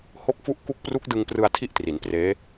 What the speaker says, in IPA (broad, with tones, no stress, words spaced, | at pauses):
ho˥˩k̚fu˥˩ʔ ku˦˥k̚pru˦˥k̚ dɯ˧ŋprɯ˧a̯ tʰi˥˩ʔtri˩˦npreː˦˥